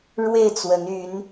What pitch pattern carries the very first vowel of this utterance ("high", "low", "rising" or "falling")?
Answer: falling